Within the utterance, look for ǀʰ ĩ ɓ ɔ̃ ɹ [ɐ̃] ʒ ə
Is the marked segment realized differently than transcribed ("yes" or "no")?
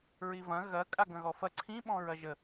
yes